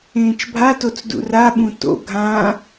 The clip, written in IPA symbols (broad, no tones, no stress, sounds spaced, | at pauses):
ẽː t͡ʃ bʱ a t o t͡s d ṵ r a ɓ ũ t o̰ ɡʱ ã